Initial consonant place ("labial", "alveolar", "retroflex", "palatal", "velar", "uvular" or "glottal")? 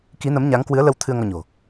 velar